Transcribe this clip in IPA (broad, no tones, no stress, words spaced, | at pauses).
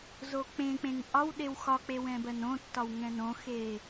zok͡pẽk͡pẽŋ ʔɒw ɗewxɒk͡pe wɛ̃bɜnõtːɒw ŋɛ̃nõxe